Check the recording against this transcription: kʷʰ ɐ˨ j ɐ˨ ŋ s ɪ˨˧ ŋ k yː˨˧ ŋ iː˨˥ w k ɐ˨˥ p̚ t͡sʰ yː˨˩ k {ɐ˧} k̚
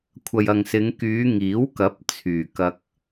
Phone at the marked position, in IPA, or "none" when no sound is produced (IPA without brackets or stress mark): ɐ˧